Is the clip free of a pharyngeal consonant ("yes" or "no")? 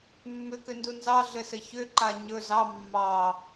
yes